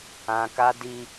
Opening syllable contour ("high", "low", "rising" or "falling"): low